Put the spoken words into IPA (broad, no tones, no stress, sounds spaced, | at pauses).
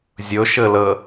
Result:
zʲ ɵ ʃ ɘ l ə